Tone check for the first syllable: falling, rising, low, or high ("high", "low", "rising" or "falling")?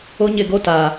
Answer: high